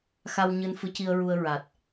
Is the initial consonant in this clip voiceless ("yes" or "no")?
yes